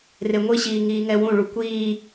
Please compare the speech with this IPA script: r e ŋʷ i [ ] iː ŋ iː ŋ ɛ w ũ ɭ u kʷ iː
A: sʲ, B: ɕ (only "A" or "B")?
B